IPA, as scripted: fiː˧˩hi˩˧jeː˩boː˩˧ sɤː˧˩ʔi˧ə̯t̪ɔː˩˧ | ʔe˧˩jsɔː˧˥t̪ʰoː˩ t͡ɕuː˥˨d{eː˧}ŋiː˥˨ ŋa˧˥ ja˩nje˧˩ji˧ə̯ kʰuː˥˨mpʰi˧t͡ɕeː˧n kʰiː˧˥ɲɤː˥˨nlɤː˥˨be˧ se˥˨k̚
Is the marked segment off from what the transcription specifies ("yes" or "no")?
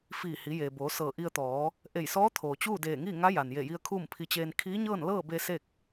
yes